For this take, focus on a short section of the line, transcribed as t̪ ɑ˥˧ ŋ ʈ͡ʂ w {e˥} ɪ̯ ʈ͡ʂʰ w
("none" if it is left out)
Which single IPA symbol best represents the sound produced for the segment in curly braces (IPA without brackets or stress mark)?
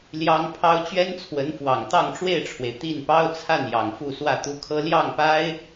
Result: e˥˩